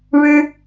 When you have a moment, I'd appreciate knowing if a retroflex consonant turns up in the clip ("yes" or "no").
yes